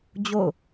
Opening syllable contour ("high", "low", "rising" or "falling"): falling